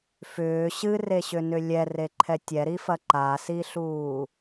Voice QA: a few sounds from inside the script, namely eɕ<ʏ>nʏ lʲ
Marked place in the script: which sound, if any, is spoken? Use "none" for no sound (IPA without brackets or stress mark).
ʏ